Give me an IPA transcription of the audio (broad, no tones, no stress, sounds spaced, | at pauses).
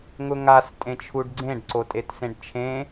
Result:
ŋ ʊ ŋ a s tʼ ẽ t͡ʃʰ u ɖ ɡ͡ǀ ẽ ɖ ǀ o tʼ e t s ẽ ɖ t͡ʃʰ ẽ